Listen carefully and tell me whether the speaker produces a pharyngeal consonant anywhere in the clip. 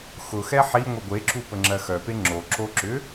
yes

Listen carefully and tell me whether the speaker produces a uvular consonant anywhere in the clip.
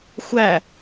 no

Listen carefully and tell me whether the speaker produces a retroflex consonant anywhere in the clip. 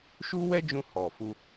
no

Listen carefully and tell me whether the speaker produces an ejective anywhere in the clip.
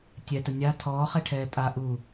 yes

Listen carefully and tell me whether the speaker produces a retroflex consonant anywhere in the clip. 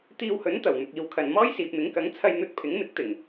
no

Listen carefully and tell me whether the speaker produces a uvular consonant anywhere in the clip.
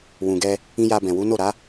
no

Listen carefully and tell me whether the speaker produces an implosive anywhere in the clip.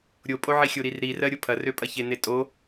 no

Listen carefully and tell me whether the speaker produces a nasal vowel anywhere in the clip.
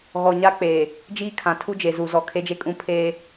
yes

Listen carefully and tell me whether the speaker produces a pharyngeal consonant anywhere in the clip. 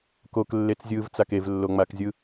no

